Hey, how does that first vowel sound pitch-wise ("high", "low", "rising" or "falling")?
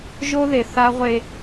high